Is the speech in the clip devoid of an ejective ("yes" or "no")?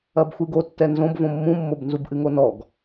yes